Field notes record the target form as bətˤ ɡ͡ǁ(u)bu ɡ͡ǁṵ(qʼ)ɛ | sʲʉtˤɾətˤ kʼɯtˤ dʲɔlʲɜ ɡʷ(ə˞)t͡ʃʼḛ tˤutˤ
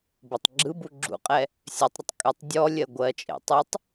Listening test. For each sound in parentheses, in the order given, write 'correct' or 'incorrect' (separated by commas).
incorrect, correct, incorrect